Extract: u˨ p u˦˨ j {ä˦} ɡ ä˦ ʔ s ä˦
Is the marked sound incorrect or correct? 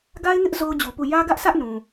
correct